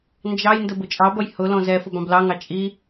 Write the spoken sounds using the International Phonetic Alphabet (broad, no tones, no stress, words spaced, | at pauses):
nd͡ʒɑjndə bʊt͡ʃʼɑbʌj hʊ lɔ̃zɛfʊb ɑ̃blɑŋɑ t͡ʃʼi